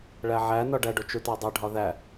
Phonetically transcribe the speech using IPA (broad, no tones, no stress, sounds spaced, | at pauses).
ɭ æ ʕ æ n ɒ ɖ æ ɖ o t͡ʃ u t ɒ dˤ e ɖʱ ɒ ð æ